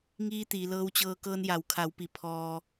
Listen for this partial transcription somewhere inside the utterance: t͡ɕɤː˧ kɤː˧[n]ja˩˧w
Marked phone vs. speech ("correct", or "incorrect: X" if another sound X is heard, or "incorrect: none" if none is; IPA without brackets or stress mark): correct